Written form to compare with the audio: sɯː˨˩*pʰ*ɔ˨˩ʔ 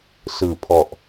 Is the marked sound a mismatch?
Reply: no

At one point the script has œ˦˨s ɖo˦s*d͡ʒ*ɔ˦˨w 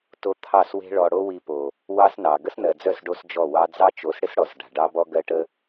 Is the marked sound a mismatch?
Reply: no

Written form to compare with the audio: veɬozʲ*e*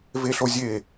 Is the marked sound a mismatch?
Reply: no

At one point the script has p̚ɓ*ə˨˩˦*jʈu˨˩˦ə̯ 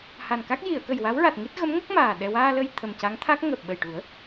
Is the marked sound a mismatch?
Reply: yes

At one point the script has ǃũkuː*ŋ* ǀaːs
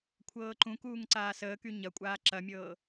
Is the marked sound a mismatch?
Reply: no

